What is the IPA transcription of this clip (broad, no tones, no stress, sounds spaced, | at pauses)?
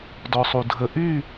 d ɔ sˤ u dʱ ə ʔ y